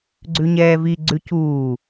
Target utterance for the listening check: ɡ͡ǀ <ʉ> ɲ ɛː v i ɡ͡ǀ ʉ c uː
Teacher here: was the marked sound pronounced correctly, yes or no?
yes